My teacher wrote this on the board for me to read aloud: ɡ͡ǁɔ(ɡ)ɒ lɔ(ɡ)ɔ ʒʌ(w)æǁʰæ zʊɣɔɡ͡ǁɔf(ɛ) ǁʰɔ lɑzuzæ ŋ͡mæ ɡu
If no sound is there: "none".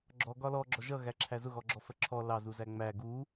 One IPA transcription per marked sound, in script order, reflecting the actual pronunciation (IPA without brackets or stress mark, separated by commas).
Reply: ɡ, ɡ͡ǁ, ɣ, ɜ